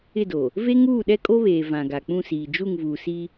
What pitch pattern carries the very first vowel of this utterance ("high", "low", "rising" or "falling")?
falling